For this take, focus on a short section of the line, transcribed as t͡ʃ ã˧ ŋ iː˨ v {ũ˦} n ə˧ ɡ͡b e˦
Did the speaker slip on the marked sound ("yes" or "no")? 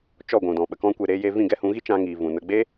yes